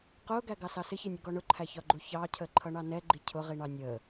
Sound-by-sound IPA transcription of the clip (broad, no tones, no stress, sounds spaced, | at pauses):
q ʊː ɡ æ ɡ ɑ s ɑ s ɪ ç ɪ nʲ ə ɡ ɔ ɳ ʊ ǃʰ æ ç ɒ ɡ͡ǃ u ç ɑː cʰ əː ǃʰ ʌ ɳ ɑ n ɛ ɡ͡ǃ i cʰ ʊ ʁ i ɳ ɑ nʲ əː